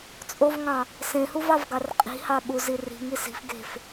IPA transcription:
t͡sʼ o v ŋ ɑ̃ | s ẽ h u v ɑ v ɡ ɑ r qʼ i̤ h ɑ ɓ u z i r i̤ ŋ i s i̤ f ɡ e̤ f

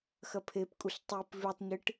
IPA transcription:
x ɐ pʰ e p kʼ u ɬ tˤ i p v ʉ tˤ ɲ ɨ ʈ

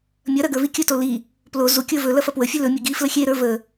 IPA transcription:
mʲ ɐ ɾ ɐ ɡ ə˞ v i kʲ ɵ t o l i | p l o z u kʲ ə˞ v ɵ l ɐ f ɐ p w ə fʲ ɵ l ɵ mʲ ə˞ ɡ i f l ə xʲ e ɾ ə˞ v ə

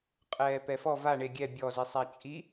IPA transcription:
qʼ ɛː p ɛ f ɔ v a ɳ e ɡʲ ɛ bʲ ɔ z i sˤ a t͡ʃʼ i

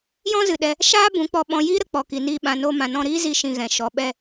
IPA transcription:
j ɔ̃˦ z ɨ˨ ɗ ɛ˧ | ʃ aː˦ b ũ˨˦ k͡p ɔ˧ ɓ ɔ̃˧ j iː˦ ɾ ə˨ k͡p ɔ˨ k i˨ n iː˧ ɓ ã˨ n oː˧ m ã˨ n ɔ̃˧ ɾ iː˦ z i˧ ʃ ĩ˧ ɣ ɛ̃˨ ʃ ɔ˨ ɓ ɛ˧

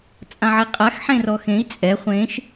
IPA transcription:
t͡sʼ ã ʕ i qʼ a x ħ ẽ r ɔ x ẽ i̯ t͡sʼ ɛ χʷ ẽ ʃ

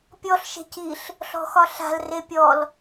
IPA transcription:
pʲ ɔ ɬ ʃ e̤ c i ɬ | ɬ ɔ̤ x ɒ ɬ a̤ l r e pʲ ɔ l

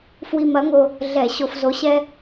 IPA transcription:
f w i˧ m ɐ˨˥ ŋ o˧ | ɮ ɛ˧˩˧ ɕ o˧ f z o˨˥ ɕ ɛ˥

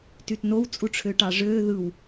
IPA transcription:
t y t n o w t͡sʼ u ʈ͡ʂʰ ø ʈ ɑ ʐ øː ð ɯ w

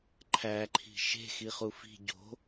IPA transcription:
ǃʰ æ ǃʰ i̤ ʃ e̤ x i χ u f i̤ ɟ o̤

